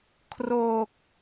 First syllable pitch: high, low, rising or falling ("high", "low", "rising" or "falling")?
low